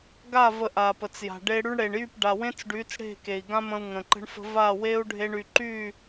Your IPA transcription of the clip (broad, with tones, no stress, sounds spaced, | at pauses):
ɡ a˦˨ v ə˧ ʔ a˨ p ə˨ t͡s j a̤˨ ɖ e˧ ɽ y˧ ɳ ɽ e˨ ɳ j y˦˨ p ɖ a˨ w ẽ˦ t͡s ɖ y˨˦ t͡s ɽ e̤˦˨ k e˨ i̯ ɡ ã˦ m ə̃˧ u̯ ŋ ə̃˨ ǃ ə̤˧ ɳ f ə̤˧ v a˦˨ w e˦ u̯ ɖʱ e˧ ɳ y˨ ǃ y˦˨